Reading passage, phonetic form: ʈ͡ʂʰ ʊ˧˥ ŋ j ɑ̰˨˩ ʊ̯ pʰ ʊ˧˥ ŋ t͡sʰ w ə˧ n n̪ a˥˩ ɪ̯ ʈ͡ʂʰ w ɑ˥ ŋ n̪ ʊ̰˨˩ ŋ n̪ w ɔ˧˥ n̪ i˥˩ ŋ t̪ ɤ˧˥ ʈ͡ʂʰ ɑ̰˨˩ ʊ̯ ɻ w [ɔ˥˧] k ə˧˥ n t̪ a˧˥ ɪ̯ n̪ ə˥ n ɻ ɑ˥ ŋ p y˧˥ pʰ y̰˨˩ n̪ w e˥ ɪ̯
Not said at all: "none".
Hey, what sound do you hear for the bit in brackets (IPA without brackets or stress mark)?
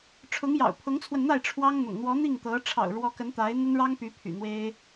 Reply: ɔ˧˥